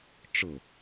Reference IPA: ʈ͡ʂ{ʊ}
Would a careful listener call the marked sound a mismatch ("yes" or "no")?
no